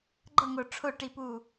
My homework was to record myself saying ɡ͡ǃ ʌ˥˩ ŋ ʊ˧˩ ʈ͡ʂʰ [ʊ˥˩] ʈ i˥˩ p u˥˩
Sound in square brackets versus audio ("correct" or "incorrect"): correct